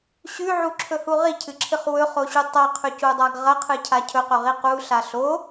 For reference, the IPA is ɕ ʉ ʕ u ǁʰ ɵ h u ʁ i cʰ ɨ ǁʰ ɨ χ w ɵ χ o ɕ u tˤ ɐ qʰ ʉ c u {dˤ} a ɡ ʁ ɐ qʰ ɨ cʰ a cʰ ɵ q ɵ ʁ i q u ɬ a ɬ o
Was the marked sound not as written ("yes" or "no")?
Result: no